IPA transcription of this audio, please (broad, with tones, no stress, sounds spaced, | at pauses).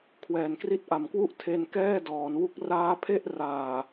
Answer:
kʰ w ɛː˩˦ n k r i˦˥ t̚ ʔ a˨˩ m k w u˥˩ ʔ tʰ e˧ n k ɛː˥˩ d ɔː˩˦ n w u˦˥ k̚ r aː˦˥ pʰ e˥˩ ʔ r aː˨˩